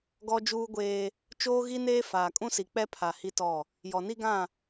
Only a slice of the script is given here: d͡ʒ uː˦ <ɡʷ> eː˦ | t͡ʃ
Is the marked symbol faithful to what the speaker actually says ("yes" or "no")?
yes